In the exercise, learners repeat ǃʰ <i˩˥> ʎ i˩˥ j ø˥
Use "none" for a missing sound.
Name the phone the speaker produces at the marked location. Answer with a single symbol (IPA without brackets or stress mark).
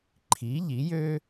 i˩˥